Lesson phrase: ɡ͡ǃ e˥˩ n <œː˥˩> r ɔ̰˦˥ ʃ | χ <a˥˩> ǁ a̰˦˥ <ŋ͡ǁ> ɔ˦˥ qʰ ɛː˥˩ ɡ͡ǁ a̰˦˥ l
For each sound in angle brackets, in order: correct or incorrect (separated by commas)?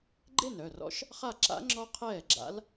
incorrect, correct, correct